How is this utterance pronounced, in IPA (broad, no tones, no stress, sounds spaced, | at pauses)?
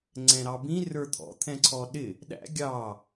ŋ͡ǀ ɛ̃ ɾ ɑ b ĩ r ə˞ t̪ʰ ɔ̰ t̪ʰ ɛ̃ ǀʰ ɔ ɗ ɪ | ɗ æ̰ ɡʲ ɑ